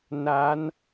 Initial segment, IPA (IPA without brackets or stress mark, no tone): n